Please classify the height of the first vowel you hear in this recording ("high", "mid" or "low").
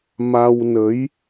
low